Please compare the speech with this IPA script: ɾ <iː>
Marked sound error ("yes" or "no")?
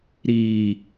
no